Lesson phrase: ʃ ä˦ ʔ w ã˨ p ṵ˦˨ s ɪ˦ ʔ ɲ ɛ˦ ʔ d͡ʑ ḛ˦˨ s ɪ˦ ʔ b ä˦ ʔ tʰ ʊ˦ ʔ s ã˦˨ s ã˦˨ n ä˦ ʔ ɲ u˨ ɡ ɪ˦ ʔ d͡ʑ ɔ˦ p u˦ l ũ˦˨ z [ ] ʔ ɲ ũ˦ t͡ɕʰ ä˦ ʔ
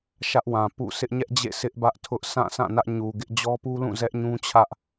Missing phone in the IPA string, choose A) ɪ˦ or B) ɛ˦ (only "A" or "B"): B